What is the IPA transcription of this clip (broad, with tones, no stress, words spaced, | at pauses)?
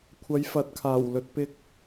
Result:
kʷʰɐ˨˧jfɐ˨˥t̚kʰaː˨˩w lɵ˧t̚pɪ˥k̚